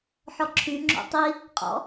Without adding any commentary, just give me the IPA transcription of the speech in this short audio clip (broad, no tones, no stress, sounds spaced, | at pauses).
ħ ɔ ǁʰ y ŋ͡ǁ o̰ tˤ i | qʼ ɔ̰